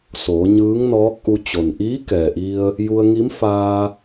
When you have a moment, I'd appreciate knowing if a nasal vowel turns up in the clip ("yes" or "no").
no